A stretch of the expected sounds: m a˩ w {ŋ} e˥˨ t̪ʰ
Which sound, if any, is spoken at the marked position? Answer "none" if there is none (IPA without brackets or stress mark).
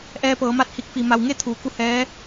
ŋ